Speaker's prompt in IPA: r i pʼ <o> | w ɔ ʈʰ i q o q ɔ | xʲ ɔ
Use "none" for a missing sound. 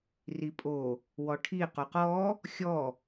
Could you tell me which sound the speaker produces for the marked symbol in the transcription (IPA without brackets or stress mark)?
o